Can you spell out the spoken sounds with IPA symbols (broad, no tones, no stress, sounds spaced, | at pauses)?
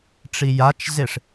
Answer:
ʈ͡ʂ i j a t͡ʃ z e ʂ